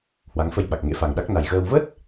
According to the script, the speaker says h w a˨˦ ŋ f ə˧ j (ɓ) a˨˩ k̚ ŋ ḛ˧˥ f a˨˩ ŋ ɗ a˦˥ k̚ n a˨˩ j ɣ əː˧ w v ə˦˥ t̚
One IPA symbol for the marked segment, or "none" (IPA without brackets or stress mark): ɓ